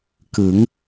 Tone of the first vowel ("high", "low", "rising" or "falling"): rising